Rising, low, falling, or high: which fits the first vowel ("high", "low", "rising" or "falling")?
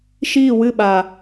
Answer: falling